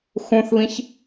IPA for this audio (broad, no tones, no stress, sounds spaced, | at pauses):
x ũ θ β ĩ ç